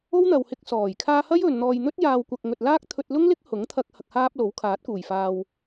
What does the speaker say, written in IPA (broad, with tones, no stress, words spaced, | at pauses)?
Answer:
o˥wn̪ɐ˨whɪ˧k̚sɔː˨˩j kʰaː˧hɐ˥j ɵ˨n n̪ɔː˨jn̪ɵ˥t̚jaː˨wkʷɐ˨k̚ ŋɵ˨t̚laː˥k̚ t̪ʰɵ˧t̚lʊ˥ŋlɪ˥k̚ hʊ˨˥ŋt̪ʰɐ˧k̚ hɐ˧k̚haː˥p̚ lo˨˥wkʰaː˨˥t̚kuː˨˩j faː˨w